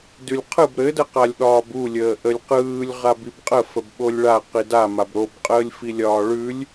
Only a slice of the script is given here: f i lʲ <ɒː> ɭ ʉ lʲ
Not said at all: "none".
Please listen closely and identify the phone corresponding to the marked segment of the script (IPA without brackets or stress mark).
ɒː